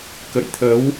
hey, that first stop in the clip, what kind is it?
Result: plain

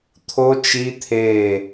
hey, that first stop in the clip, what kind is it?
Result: aspirated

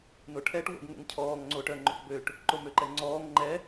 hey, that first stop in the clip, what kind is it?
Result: aspirated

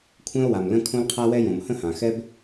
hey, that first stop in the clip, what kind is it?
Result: aspirated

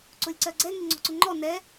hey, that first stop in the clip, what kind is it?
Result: click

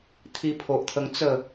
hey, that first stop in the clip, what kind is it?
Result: aspirated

